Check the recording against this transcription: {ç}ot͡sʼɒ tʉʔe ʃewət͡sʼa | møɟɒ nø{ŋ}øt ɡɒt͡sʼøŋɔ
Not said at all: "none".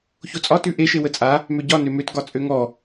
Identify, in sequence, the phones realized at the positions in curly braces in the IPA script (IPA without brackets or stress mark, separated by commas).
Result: ç, m